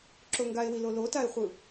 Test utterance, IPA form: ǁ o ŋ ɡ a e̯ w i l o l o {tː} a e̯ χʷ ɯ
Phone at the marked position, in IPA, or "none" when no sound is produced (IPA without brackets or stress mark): t